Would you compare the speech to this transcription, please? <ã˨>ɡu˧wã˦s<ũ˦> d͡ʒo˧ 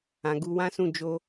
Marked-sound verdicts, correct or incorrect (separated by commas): correct, incorrect